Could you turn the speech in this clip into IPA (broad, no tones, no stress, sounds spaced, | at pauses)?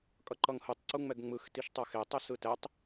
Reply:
kʼ ʌ ǃ ʌ ŋ h ɯ tˤ ǀ u ŋ͡m ɛ ɡ ŋ͡m ɯ x t i ʃ tˤ a x e tˤ ɛ s ɯ t ɛ tˤ